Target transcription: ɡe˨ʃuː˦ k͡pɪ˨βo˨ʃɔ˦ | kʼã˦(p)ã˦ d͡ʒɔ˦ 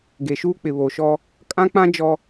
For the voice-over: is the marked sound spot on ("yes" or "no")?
no